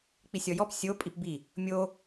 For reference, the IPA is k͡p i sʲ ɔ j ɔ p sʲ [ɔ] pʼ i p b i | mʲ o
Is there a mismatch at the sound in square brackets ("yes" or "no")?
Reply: yes